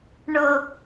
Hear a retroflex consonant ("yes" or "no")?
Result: yes